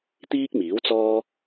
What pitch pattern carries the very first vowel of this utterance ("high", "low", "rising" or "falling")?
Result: high